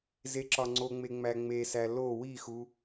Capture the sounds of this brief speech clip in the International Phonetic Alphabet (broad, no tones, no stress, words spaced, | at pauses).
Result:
zeǁɒŋ͡ǀoŋ͡me ŋ͡mæŋ͡mesæ lo wixu